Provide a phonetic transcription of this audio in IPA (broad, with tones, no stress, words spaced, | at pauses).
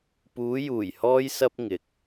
puː˨˧juː˨˩jhɔː˧j sɐ˥p̚ŋɪ˨k̚